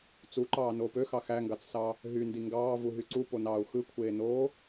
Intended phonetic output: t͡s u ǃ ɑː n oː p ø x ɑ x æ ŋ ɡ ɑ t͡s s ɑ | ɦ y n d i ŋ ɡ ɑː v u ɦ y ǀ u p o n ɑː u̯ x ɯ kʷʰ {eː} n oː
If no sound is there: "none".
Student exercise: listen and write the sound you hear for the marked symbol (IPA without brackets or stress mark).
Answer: eː